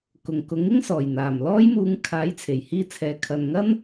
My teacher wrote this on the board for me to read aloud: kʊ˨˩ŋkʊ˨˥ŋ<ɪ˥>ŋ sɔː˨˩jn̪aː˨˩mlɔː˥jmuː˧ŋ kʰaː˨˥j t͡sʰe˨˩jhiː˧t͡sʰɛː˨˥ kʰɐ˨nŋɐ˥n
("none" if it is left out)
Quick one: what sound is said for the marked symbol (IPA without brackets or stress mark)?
ɪ˥